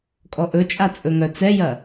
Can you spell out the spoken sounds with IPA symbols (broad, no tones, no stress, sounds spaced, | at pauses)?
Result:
kʼ ɔ ʔ ɵ t͡ʃʼ a t͡sʼ ɵ ŋ œ t͡s ɛ j ɐ